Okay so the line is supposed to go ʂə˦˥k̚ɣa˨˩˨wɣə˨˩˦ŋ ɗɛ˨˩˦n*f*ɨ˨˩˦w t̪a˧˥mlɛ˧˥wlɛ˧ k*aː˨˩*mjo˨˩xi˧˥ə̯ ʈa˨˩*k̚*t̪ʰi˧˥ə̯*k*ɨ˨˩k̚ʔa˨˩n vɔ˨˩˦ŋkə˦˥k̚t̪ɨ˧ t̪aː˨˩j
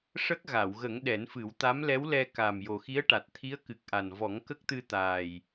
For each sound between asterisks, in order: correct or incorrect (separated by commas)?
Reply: correct, correct, incorrect, correct